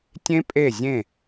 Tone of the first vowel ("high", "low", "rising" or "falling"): high